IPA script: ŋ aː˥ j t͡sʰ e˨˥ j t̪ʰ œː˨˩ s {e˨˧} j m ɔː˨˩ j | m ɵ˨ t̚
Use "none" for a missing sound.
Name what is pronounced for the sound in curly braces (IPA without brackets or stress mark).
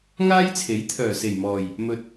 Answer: e˨˩